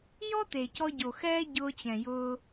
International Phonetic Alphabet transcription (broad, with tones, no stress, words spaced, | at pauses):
jɔ˦te˨cɔ˧ ɟo˨xɛː˦ ɟʊː˧t͡ɕɛ̃˨ jʊː˧